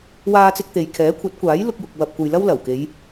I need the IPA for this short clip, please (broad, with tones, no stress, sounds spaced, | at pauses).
w aː˧ t͡s ɪ˧ k̚ t̪ e˨ j kʰ ɛː˨˥ kʷʰ ɐ˨˥ t̚ kʷ aː˨˥ j l ʊ˧ k̚ j ʊ˨ k̚ w ɐ˨ p̚ kʷ ɐ˨ j l ɐ˥ w l ɐ˨˩ w k e˨˧ j